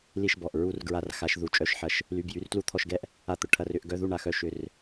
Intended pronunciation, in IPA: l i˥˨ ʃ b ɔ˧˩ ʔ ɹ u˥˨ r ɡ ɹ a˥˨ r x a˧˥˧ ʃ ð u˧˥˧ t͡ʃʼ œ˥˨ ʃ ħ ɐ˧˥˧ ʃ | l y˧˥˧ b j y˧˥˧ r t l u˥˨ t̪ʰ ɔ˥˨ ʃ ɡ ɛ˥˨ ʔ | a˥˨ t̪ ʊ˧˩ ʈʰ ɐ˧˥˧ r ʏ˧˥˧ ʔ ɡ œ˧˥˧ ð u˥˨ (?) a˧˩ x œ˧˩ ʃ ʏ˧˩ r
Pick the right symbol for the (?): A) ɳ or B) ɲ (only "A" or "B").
A